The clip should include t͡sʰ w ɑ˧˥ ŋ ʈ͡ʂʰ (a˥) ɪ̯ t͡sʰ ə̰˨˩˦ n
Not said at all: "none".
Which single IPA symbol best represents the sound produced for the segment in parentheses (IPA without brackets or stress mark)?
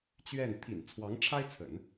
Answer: a˥